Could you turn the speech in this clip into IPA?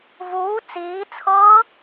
v uː t͡s iː t͡sʰ ɤː

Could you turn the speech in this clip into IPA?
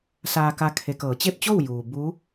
s aː˧ k a˧ kʰ e˩˧ k ɤː˩˧ t͡ɕ e˥˨ p̚ t͡ɕ o˥˨ w j uː˩ b u˧˥

